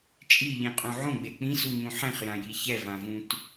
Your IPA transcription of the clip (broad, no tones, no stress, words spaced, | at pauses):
t͡ʃʼiʎĩqʼũ ʕõɡ͡be k͡pĩsuɲũ ħẽχjãji çɛvãvũt